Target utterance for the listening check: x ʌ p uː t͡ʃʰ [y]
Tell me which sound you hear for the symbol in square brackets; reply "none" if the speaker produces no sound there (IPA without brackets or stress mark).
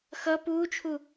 u